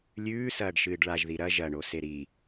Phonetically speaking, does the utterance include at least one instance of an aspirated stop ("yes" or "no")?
no